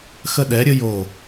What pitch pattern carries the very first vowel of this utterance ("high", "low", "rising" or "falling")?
high